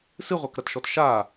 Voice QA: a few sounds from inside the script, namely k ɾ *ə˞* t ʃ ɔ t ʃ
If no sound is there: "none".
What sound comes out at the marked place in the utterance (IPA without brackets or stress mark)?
ɐ